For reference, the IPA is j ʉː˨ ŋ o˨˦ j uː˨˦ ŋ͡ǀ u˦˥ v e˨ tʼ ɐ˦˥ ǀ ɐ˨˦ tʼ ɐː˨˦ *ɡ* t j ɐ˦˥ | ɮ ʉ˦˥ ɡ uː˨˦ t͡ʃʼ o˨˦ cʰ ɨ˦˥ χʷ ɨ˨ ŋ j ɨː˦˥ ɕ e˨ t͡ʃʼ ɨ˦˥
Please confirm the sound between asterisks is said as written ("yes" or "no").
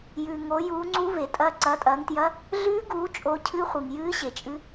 no